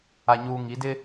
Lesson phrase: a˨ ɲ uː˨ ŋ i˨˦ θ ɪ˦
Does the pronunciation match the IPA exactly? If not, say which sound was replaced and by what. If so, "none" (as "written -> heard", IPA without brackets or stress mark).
θ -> d